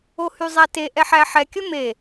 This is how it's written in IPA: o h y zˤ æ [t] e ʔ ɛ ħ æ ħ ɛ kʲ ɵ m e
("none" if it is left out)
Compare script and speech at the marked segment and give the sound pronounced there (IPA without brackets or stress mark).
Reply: t